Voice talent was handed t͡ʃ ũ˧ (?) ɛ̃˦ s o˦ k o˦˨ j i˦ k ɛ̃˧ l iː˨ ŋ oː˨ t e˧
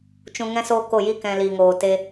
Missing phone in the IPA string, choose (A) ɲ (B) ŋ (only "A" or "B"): B